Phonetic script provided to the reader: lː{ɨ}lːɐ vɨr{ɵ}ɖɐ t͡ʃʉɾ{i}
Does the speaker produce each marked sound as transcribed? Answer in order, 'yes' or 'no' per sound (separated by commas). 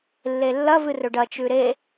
no, yes, no